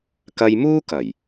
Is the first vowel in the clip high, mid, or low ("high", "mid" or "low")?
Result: low